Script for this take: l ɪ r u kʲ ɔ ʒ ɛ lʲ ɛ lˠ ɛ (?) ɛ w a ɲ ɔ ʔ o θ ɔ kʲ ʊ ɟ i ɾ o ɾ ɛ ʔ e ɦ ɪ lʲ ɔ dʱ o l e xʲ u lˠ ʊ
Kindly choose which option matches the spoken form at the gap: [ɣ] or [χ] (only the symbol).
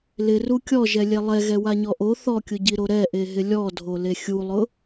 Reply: ɣ